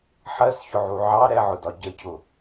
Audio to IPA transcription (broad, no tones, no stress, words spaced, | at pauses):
ħɜsçʊʕu ʕɑ ɾɛʕʊdɒ ɟəcʰʊ